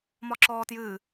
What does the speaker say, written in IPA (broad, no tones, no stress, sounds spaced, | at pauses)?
m ɒ ǁ ɔː t j ɨː